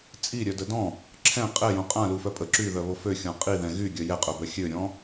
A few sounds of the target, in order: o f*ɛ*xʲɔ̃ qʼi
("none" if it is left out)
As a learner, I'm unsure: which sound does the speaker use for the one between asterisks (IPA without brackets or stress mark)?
ø